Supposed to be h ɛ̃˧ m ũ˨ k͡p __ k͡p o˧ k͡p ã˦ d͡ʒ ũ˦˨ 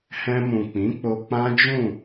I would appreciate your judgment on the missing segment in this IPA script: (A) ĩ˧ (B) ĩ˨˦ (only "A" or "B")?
B